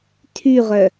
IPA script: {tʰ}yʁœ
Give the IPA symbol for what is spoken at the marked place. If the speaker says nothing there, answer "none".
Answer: tʰ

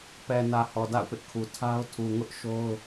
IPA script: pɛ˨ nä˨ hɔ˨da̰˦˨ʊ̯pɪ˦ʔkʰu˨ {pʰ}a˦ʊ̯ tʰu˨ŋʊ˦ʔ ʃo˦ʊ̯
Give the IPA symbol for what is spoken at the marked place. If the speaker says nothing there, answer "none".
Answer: tʰ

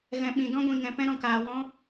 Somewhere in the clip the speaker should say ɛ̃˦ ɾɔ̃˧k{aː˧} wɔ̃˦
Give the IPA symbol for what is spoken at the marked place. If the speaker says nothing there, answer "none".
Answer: aː˧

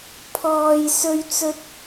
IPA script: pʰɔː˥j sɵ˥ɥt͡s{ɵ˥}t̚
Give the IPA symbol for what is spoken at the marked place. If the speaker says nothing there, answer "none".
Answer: ɵ˥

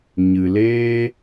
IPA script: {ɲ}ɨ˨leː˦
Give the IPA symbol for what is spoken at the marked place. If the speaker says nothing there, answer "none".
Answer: ɲ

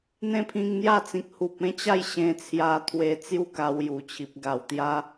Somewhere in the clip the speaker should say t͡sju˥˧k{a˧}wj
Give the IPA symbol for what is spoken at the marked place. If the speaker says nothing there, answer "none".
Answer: a˧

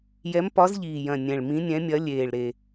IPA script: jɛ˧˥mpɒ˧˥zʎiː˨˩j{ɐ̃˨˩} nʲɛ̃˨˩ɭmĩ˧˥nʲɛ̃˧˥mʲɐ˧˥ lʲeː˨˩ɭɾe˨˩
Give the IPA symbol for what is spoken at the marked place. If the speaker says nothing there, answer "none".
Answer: ɐ̃˨˩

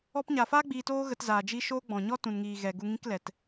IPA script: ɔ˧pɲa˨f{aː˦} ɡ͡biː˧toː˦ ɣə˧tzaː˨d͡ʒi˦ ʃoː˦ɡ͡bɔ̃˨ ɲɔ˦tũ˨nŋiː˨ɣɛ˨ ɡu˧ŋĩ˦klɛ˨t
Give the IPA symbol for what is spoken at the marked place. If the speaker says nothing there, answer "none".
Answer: aː˦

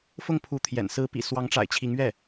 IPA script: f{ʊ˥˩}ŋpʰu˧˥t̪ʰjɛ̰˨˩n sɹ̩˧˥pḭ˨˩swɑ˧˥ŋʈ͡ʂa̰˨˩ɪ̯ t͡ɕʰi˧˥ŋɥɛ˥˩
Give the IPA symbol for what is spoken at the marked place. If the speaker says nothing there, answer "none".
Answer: ʊ˥˩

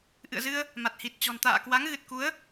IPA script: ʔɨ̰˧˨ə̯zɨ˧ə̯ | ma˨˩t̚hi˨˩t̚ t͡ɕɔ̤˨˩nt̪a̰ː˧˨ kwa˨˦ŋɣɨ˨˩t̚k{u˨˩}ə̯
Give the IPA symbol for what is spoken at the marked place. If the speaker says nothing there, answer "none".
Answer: u˨˦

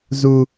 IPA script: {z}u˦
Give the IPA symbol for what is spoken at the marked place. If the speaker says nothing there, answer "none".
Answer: z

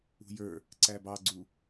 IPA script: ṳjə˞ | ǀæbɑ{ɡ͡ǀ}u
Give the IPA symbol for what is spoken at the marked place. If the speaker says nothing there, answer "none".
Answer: ɡ͡ǀ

